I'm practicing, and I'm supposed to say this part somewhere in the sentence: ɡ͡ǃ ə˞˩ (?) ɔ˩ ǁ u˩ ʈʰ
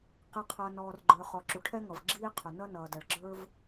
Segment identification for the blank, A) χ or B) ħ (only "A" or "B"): A